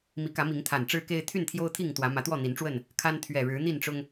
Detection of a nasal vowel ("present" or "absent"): absent